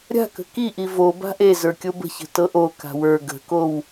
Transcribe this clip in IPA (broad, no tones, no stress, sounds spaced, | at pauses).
ɾʲ a̤ k ə̤ k i ʔ i v o b a̤ ʔ e z ə˞ kʲ o b ə̤ ç ə̤ t ɤ ʔ o k a̤ w ə˞ ɡ ə̤ k o w